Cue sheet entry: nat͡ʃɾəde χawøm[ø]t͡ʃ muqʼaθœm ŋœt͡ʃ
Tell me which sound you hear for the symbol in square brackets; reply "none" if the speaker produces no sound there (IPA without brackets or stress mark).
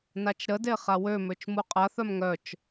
ø